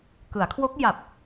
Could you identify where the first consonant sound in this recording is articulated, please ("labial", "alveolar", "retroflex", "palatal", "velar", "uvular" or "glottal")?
velar